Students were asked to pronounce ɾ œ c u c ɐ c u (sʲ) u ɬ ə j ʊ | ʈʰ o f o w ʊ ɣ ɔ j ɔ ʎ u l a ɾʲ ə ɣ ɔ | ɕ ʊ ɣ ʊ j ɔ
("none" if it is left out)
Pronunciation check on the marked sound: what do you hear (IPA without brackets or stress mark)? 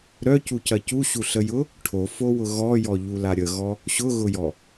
ɕ